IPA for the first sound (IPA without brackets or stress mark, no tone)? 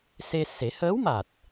s